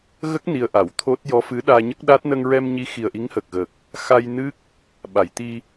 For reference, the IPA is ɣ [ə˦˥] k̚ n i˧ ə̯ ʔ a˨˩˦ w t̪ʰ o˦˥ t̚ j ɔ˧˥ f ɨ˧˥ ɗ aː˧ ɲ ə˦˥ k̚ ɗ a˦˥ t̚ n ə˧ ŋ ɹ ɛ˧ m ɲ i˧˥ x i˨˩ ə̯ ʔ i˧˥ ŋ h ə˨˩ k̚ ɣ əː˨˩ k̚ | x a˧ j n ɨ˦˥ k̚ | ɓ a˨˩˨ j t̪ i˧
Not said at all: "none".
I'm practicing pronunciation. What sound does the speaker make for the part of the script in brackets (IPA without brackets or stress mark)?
ə˦˥